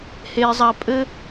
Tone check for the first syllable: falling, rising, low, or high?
high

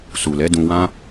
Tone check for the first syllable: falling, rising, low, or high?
low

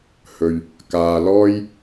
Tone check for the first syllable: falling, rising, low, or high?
low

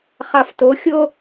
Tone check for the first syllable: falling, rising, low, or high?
low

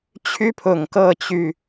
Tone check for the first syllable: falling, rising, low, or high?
high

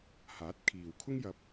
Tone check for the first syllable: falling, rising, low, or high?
rising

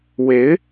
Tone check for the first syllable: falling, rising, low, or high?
rising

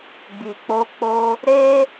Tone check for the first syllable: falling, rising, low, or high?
low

